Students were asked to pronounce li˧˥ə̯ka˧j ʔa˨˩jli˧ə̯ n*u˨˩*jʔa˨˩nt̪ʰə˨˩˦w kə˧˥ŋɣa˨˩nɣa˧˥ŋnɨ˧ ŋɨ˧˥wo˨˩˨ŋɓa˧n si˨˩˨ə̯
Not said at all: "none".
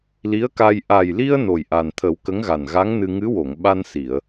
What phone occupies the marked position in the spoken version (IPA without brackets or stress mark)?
o˨˩